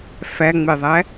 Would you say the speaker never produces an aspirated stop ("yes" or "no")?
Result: yes